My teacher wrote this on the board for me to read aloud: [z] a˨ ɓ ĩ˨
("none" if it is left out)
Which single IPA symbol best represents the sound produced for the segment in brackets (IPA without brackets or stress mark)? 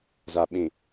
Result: z